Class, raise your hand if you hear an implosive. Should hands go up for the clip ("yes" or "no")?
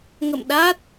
yes